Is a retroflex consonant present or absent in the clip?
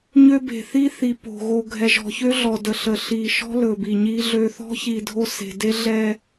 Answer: absent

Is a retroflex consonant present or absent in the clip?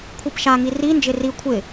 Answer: absent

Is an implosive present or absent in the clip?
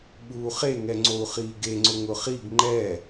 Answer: present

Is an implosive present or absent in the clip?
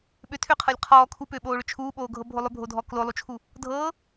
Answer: present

